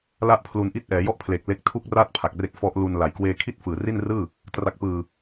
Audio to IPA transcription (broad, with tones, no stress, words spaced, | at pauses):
la˥˩ʔpʰlu˧nʔi˥˩t̚ ʔɛː˩˦jɔ˥˩ʔpʰleː˨˩k̚ le˦˥k̚tʰu˥˩k̚raː˥˩t̚ pʰa˨˩k̚re˦˥k̚ fɔ˦˥ʔlu˧nla˨˩j kweː˧ kʰi˥˩t̚fɯː˨˩ ri˥˩nrɯː˥˩ | tra˨˩k̚pɯː˨˩